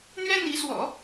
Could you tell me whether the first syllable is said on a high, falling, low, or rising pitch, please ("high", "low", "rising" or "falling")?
high